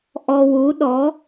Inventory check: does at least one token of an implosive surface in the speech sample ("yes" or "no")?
yes